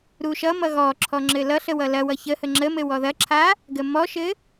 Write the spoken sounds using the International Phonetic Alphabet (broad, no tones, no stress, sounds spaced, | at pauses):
ɾ u ʃ ʌ m ʌ ɣ ɔ ǁʰ ɔ ŋ͡ǁ ɘ l ʌ ɬ ə w ʌ l ɐ w ʌ ç ə h ə ŋ͡ǁ ə m ɘ w ɔ ð ɐ ǁʰ a | ɡ ə m ɔ ʃ ɘ